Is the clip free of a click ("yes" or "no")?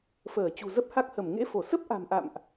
yes